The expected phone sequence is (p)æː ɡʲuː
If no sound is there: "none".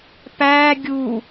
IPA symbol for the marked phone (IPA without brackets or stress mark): p